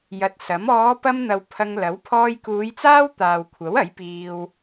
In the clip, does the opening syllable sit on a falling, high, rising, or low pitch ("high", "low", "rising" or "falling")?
low